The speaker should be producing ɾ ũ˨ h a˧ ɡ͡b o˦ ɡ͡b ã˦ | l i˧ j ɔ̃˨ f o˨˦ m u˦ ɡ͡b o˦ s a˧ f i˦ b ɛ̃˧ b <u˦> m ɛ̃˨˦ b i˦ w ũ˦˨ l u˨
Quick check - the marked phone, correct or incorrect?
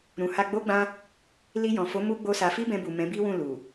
incorrect